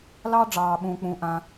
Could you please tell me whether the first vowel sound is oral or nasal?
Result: oral